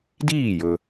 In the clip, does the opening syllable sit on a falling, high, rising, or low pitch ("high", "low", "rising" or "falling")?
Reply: falling